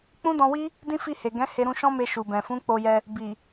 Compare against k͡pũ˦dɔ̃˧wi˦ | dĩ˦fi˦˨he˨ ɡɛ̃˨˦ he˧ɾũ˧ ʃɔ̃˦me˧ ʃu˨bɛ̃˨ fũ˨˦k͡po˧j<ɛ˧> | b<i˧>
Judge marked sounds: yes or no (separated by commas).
yes, no